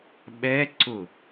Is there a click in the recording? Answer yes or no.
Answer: yes